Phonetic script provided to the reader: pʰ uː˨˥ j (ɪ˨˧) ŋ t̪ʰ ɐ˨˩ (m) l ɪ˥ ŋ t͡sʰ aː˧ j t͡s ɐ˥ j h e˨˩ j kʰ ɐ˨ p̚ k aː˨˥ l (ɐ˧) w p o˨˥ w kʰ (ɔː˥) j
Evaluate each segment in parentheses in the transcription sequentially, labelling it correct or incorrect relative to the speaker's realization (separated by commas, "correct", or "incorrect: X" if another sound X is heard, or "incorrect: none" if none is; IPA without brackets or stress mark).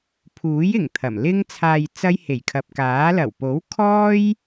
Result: incorrect: ɪ˨˩, correct, incorrect: ɐ˨˩, correct